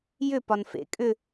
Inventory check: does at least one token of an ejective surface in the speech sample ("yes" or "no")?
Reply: yes